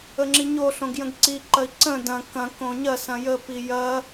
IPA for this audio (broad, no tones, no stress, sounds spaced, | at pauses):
ə ŋ͡ǁ i ɲ o ɬ õ ɡ j ə̃ ɡ ǀ i ǃ ɐ i̯ ǀ ə̃ d ɐ̃ k ɐ̃ k õ ɲ ɐ s ɐ̃ j ə p i j ɐ